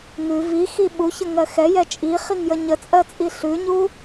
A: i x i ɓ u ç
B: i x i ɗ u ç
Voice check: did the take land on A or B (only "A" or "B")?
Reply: A